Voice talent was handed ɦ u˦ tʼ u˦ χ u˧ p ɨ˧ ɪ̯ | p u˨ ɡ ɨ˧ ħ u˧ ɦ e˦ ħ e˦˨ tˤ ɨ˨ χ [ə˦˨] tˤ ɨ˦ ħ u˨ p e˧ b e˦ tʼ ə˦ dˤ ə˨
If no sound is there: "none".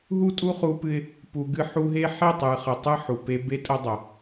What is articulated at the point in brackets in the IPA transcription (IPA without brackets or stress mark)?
ə˨